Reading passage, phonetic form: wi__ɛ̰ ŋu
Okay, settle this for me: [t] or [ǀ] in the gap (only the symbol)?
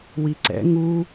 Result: ǀ